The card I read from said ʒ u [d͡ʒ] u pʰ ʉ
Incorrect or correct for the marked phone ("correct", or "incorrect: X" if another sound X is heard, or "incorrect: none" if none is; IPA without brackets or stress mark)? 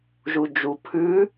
correct